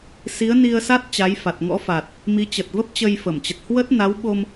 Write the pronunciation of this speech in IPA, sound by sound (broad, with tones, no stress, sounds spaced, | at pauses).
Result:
s i˨˦ ə̯ n i˧ ə̯ s a˦˥ t̚ t͡ɕ a˨˦ j f a˨˩ t̚ ŋ ɔ̰˧˥ f a˨˩ t̚ | m i˨˦ t͡ɕ ə˨˩ t̚ v ə˦˥ p̚ t͡ɕ ə˧ j f ə˧˩ m t͡ɕ ə˨˩ t̚ h w ə˦˥ t̚ n a˨˦ w ɓ o˧ m